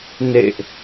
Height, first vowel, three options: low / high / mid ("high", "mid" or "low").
mid